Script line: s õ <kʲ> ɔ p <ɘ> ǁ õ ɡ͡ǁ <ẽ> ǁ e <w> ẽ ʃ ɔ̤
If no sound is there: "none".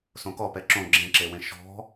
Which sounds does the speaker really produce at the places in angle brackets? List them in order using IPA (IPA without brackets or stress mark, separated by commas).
k, ɛ, ẽ, w